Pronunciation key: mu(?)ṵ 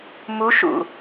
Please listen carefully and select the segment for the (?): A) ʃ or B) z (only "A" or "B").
A